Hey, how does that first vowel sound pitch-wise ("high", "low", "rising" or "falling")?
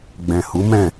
low